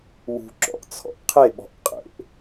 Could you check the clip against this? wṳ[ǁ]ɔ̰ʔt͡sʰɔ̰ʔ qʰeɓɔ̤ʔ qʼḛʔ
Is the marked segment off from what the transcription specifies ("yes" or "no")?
no